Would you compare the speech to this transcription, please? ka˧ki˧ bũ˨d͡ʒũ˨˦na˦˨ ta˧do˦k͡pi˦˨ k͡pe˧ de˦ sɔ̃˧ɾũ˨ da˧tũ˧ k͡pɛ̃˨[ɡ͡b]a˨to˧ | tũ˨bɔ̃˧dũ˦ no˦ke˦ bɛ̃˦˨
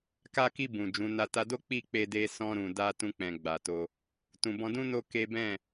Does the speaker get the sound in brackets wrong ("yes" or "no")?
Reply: no